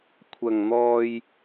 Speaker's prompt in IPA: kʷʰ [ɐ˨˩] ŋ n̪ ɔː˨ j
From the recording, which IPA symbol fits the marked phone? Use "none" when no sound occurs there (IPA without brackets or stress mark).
ɐ˨˩